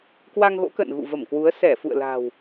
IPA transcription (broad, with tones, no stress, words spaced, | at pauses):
kwa˧ŋɣo̰˧˥kə̰ː˧˨n ɣṵ˧˨və˧˩mkwu˨˦ə̯ sɛ˧˩fṵ˧˨ə̯la̤˨˩w